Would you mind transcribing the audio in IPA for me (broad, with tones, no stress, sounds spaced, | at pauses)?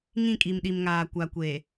ŋ ĩ˦˨ kʼ i˨ m ɗ i˨ m ŋ aː˨ kʷ a˨ kʷ e˨